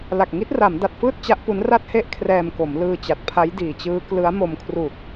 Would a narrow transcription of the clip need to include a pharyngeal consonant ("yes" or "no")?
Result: no